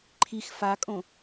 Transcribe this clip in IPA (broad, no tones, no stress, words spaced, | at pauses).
ǃʰix fakʼõ